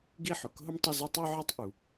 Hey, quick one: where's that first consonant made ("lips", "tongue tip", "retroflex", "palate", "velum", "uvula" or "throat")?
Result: velum